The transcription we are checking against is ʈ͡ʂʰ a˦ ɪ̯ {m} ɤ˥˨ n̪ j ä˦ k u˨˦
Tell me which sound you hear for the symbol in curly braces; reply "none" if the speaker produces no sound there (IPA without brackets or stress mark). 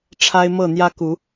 m